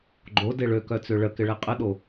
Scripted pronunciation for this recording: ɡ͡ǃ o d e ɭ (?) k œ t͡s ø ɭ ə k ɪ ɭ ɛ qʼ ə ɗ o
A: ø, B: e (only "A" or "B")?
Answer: A